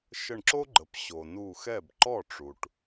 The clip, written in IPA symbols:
ʃə˧˩ɳǁo˥ɡ͡ǃə˩p ɕo˩ nu˧˩xɛ˥˩b ǃɔ˥˩ʈ͡ʂu˩ʈ

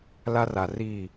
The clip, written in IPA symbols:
la˦ra˨ ri˦˨

